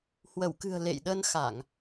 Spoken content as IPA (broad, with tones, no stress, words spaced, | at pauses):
hwə˧˩wkɨ̤˨˩ə̯ lḛ˧˨jɗə˧n xa˧˩˨ŋ